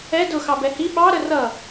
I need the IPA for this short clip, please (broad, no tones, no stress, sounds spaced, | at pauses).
ɛ d ʊ x ɑ b ɛ h i ɓ ɑ ɾ ə r ʌ